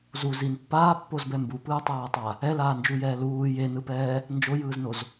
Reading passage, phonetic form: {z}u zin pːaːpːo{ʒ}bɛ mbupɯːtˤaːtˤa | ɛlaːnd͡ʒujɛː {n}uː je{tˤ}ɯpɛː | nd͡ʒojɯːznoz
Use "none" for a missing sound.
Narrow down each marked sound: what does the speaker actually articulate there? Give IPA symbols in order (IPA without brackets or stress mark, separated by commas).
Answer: z, z, l, n